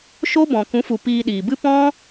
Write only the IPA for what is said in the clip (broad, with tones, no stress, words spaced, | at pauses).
ʃo˦bɔ̃˨ kũ˨˦fu˨ piː˧ɗiː˨bɨ˦ pɔ̃˦